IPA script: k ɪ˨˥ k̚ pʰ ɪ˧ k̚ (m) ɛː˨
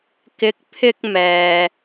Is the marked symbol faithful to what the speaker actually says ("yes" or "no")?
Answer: yes